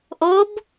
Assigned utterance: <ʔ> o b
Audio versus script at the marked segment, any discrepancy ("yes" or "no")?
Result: no